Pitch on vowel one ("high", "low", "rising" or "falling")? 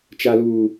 high